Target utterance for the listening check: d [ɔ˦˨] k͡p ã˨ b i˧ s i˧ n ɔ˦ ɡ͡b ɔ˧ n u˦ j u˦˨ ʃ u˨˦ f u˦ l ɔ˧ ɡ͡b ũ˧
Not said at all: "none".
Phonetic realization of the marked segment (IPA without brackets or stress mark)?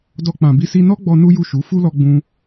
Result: ɔ˧